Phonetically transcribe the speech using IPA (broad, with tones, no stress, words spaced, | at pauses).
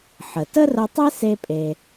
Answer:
ħə˩tə˥rə˧tˤe˥ se˥pʼe˩